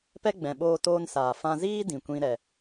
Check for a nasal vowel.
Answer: present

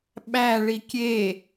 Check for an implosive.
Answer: present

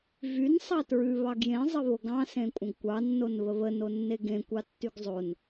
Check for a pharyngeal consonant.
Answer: absent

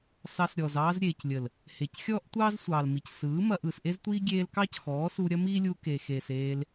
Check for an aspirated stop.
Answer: absent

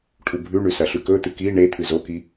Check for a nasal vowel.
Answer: absent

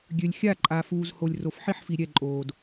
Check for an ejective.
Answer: present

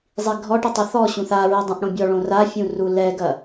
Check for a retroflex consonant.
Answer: present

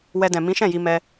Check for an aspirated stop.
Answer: absent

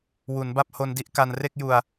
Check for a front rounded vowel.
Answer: absent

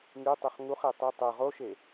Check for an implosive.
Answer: absent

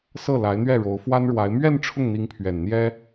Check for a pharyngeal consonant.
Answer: absent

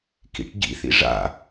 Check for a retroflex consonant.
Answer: present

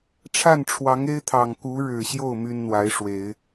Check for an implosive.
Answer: absent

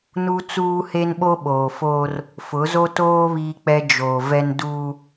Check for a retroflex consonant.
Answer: absent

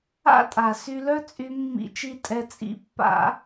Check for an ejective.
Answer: present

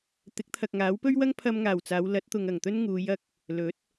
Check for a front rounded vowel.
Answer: absent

